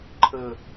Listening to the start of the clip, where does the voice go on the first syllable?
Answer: falling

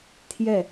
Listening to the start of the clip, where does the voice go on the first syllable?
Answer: falling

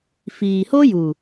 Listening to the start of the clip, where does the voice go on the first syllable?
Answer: low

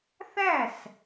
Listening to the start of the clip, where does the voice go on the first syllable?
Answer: falling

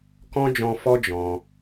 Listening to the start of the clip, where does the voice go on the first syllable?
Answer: high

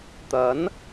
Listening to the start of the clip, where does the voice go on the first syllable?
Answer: rising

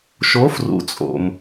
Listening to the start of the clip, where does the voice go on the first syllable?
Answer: rising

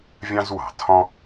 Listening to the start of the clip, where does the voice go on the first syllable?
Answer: high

